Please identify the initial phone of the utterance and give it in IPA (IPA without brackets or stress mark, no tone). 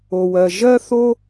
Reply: o